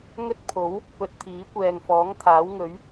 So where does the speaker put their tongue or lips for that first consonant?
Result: velum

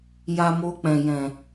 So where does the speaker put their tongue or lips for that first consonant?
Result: palate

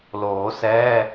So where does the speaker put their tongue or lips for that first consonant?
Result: tongue tip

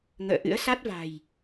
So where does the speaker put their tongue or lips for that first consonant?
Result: velum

